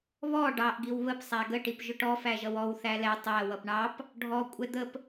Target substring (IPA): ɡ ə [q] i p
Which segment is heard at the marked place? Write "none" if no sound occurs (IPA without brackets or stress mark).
ʈ